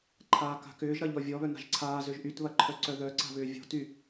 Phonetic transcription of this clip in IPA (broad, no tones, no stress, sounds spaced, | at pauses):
ǃʰ aː k a̤ k ʏː ʒ ɾ ɐ ʎ ɔ vʲ ɔ β œ n a̤ ʒ ǀʰ aː z ø ʒ ʔ y t β ɐ ǃʰ œ ǀ œ ð œ ǀ a̤ β ʏː vʲ ɔ̤ t y